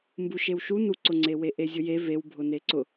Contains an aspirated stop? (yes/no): no